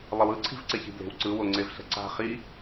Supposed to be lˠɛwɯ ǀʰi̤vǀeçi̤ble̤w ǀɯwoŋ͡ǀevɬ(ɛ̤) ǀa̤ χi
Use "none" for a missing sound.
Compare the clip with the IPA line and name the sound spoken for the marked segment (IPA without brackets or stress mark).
ɛ̤